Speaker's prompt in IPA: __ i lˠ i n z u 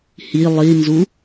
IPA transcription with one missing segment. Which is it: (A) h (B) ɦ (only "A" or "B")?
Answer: A